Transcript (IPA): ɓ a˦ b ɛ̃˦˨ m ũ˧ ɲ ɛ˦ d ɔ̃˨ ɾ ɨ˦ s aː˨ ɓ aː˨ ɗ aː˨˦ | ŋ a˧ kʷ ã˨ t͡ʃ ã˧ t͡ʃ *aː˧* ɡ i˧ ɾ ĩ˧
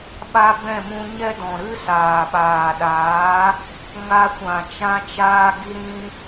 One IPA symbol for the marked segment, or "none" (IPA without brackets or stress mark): aː˧